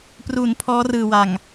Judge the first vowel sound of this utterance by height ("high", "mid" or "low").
high